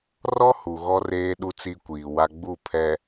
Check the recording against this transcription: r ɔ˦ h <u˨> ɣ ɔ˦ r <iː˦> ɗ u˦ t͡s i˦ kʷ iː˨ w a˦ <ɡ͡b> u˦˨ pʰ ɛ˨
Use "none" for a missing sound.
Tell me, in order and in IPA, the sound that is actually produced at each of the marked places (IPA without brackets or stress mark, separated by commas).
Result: u˨, eː˦, ɡ͡b